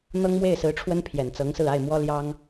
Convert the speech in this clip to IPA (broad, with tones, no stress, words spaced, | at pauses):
n̪ɤ˥ŋmwe˥˩ɪ̯sɹ̩˧˥ʈ͡ʂʰwə˥n pʰjɛ˨˩nt͡sɤ˧˥ŋsɹ̩˥˧ a˥˩ɪ̯mwɔ˥ ljɑ˥ŋ